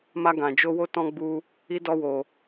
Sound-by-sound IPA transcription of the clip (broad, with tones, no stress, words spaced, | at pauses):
ma˦ɡã˧d͡ʒo˦wo˦ tɔ̃˦ɡ͡bu˦ | i˦dɔ˦wo˧